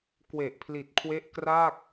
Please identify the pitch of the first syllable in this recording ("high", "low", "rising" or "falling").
low